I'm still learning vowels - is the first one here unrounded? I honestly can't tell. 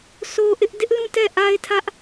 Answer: no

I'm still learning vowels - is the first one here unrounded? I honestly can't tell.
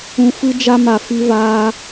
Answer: no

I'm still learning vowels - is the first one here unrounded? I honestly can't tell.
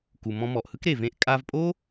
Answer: no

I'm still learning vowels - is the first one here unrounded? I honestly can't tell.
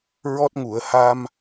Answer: no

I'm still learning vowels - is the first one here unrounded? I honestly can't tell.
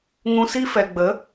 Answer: no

